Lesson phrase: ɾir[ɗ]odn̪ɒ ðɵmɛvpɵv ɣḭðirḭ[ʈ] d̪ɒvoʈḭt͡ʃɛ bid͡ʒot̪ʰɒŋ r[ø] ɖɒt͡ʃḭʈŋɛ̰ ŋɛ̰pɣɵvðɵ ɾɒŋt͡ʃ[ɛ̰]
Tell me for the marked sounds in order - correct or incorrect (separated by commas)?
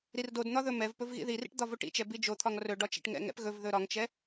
incorrect, correct, incorrect, incorrect